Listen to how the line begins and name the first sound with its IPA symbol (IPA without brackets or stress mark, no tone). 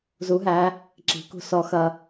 z